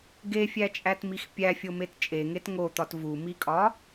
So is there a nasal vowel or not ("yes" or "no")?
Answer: no